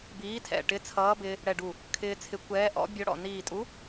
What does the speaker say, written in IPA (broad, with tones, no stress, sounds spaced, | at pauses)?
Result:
b iː˨˥ tʰ ɛ̰˧˩ ʈ ɪ˨˥ t͡sʰ ʌː˨˥ b ɪː˧ | ɽ ɛ˧˩ ɖ u˧˩ | kʰ ɪː˧ t͡sʰ ɪ˨˥ kʷ ɛː˨˥ ʔ ɔ̰˨˥ bʲ ɔ˧ ɽ ɔ̰˧˩ n iː˧˩ tʼ u˨˥